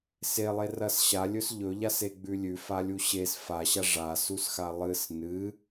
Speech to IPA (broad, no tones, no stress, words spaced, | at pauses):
selˠerɐs ɕalʲɵs ʎɵʎaseɡ͡bʉ lʲʉfalʲu ɕes faɕa ʐasusxa lˠɨs nɨ